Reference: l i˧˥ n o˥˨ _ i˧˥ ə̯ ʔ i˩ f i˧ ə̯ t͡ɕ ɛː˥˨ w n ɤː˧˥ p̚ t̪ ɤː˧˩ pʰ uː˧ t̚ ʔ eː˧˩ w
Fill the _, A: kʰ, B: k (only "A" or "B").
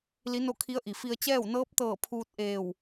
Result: A